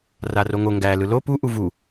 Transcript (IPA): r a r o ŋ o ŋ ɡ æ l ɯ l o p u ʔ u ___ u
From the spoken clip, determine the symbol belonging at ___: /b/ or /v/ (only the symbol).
v